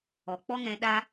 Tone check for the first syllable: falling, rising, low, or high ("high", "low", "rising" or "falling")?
low